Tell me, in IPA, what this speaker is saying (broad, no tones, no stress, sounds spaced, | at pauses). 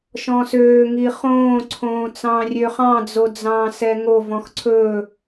ʃ ɔ̃ s øː ŋ i χ õː ǀʰ õː t͡s ɑ̃ː rʲ ø χ ɑ̃ d͡z o d͡z ɑ̃ː s ɛ ŋ o v ɔ̃ x ǀʰ ɵ